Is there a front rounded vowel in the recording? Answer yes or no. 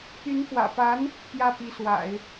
yes